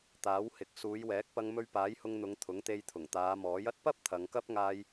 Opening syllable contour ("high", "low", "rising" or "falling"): rising